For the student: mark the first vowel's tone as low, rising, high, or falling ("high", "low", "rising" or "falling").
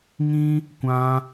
high